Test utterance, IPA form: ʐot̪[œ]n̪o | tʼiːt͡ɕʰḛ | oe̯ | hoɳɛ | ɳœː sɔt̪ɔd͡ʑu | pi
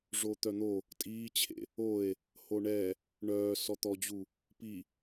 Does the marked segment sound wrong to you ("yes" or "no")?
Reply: no